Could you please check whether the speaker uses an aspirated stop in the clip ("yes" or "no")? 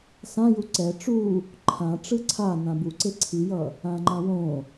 yes